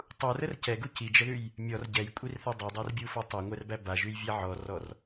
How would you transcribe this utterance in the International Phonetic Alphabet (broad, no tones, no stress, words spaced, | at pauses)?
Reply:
tˤurər cɛɡu cid͡ʒəðʉj | mʲɔr ɟɛjkʷʼirθɛ dˤadˤærbʲufɔ tˤɛŋʷɛrbæ baʒʉjvʲæ ʕɔrɔr